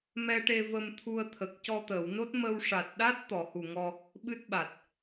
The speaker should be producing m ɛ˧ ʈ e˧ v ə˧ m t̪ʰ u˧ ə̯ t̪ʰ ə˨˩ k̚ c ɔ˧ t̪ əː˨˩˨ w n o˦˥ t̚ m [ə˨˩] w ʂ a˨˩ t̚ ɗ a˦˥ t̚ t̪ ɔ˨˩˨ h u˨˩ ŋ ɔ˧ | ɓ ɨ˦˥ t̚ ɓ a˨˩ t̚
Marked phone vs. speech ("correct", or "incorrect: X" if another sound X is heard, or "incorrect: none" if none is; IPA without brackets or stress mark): incorrect: ə˧